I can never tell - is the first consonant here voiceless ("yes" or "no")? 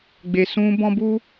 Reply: no